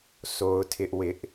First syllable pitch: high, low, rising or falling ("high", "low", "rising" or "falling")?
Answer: high